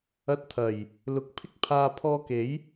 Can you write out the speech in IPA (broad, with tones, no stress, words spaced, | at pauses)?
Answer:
ɐ˧t̚t̪ʰɐ˨˩j | lʊ˨k̚pʰɪ˥k̚pʰaː˧ pʰɔː˧ke˨˥j